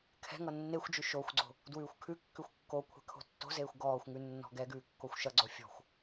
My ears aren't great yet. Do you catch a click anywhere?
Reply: yes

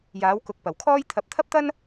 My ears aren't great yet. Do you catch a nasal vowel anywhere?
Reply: no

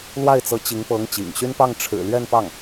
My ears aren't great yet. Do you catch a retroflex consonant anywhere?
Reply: yes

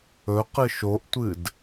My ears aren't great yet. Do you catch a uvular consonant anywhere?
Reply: yes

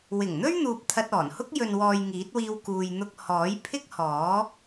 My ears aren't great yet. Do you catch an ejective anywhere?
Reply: no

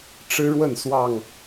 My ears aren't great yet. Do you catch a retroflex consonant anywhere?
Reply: yes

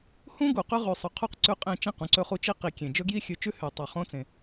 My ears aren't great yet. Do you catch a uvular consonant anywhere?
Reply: yes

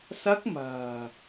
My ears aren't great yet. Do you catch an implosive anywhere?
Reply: no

